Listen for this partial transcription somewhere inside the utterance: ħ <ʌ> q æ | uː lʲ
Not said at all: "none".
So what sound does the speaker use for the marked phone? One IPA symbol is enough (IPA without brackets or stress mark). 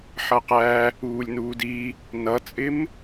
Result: ʌ